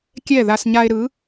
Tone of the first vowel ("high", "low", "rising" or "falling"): falling